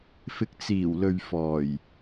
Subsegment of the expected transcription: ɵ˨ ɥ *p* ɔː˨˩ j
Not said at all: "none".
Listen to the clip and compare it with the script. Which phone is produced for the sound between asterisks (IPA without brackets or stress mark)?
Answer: f